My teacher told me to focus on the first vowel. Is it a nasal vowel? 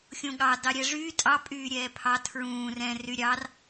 yes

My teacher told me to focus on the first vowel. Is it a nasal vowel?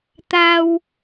no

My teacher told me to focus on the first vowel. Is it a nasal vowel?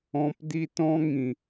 yes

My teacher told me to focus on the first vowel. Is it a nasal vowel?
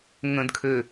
yes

